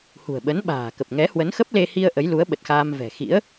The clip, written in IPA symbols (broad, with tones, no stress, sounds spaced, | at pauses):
h ṳ˨˩ ə̯ ɓ ə˨˦ n ɓ a̤ː˨˩ k ə˨˩ p̚ ŋ ɛ˨˦ h w ə˨˦ n x ə˦˥ p̚ l e˧ h i˧ ə̯ ʔ ə˨˦ j l u˨˦ ə̯ ɓ ə˨˩ t̚ x aː˧ m v ɛ̤˨˩ x ḭ˧˥ ə̯